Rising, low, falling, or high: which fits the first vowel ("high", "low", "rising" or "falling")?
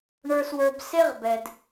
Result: low